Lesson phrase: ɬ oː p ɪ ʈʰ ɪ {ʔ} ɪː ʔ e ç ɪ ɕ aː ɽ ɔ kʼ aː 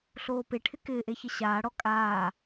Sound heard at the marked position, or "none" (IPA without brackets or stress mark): k